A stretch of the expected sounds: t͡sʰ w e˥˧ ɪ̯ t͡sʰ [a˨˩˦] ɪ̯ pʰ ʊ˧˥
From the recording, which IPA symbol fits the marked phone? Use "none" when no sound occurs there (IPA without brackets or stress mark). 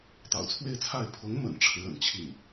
a˥˩